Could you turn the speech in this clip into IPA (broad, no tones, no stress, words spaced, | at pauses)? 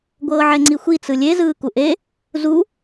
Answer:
ɡʷɤːʕɛŋ͡ǀixʷi t͡sɯlʲe zɯːkuʔe | zu